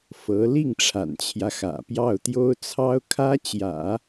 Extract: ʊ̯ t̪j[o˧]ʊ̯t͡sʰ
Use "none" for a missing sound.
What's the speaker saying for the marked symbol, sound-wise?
o˥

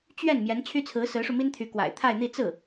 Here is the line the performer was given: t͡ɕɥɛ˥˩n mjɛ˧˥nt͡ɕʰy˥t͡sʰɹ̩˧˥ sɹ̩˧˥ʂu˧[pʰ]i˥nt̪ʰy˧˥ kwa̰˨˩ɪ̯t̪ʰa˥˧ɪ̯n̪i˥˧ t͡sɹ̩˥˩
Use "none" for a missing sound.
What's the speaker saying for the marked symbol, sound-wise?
m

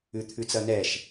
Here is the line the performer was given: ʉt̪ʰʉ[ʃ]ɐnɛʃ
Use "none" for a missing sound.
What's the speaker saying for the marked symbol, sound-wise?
t͡s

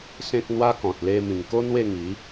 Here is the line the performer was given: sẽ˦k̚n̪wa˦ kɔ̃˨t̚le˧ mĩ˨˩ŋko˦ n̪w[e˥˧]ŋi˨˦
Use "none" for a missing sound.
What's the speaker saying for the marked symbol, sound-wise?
e˥˧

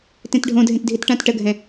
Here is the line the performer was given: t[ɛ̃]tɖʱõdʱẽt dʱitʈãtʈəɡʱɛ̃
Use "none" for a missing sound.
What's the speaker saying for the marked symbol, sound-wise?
ẽ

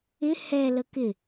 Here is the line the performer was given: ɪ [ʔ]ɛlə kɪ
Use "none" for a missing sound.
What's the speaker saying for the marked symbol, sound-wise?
h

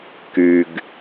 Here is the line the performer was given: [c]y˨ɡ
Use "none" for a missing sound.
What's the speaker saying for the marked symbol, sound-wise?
k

